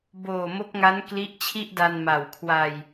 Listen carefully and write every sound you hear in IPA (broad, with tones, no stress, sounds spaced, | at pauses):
b oː˨˩ m o˦˥ k̚ ŋ a˦˥ n k l i˦˥ ʔ t͡ɕʰ i˥˩ ʔ d a˧ n m a˨˩ w kʰ w a˧ j